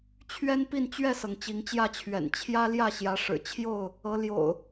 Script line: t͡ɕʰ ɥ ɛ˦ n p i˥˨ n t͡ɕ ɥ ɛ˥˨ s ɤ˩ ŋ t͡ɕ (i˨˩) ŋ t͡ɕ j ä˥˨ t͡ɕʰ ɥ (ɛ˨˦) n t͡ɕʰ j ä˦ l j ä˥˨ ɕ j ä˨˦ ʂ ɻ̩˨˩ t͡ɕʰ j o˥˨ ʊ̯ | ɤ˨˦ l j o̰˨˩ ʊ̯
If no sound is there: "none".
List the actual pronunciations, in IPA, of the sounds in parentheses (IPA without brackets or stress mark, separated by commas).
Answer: i˨˦, ɛ̰˨˩